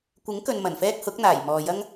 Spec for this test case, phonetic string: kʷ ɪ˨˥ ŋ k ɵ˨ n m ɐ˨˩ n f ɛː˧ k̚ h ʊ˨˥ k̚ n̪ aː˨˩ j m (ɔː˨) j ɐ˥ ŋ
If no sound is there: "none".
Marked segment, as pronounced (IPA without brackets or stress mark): ɔː˨